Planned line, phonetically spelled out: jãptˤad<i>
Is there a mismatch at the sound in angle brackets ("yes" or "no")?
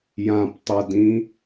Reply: yes